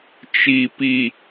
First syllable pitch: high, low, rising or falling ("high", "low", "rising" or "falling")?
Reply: low